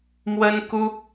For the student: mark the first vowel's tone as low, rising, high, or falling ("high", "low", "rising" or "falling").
high